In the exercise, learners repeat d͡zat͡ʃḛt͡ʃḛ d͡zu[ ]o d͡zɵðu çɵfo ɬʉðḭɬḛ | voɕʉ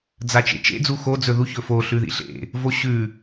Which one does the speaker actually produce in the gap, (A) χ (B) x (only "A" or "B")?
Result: B